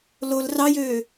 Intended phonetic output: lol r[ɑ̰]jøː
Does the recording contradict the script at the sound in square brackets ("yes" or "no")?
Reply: yes